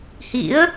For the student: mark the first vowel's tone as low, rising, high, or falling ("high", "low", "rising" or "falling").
rising